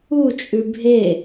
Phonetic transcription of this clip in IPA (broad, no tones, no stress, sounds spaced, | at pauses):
u t͡ʃʼ ʉ bʱ e